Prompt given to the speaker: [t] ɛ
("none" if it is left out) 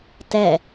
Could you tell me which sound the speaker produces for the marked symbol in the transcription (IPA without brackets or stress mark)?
t